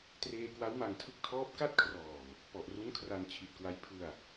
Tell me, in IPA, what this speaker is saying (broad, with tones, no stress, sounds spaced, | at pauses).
t r eː˧ k w a˦˥ w m a˧ ŋ tʰ ɯ˦˥ k̚ tʰ ɔː˦˥ p̚ k a˥˩ t̚ kʰ r ɔː˨˩ m | p ɔ˨˩ ʔ r u˦˥ n kʰ r a˧ n t͡ɕʰ i˨˩ t̚ k w a˦˥ j pʰ ɯ˧ a̯